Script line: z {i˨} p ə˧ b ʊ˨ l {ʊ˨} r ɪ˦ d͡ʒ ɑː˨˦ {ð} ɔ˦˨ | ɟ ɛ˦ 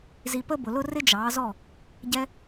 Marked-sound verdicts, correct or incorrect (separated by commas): correct, incorrect, incorrect